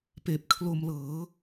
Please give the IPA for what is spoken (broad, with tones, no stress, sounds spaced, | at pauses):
p eː˨˩ p̚ kʰ l o˧ m l ɤː˩˦